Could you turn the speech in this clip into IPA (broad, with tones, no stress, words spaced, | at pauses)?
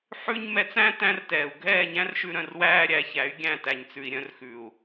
ħʉ˦ɲ mɛ˧t͡sæ̃˦ tæ̃˦rtɛː˨u̯ ɡʱɛː˦˨ɲæ̃˦rʃʉ˧ ɾœ̃˧rwæː˦ɾʲæ˨˦çæ˨˦y̯ ɡʲæ̃˦˨tæ˨ɲt͡sʉ˨i̯ ɾʲœ̃˧rxʉ˨u̯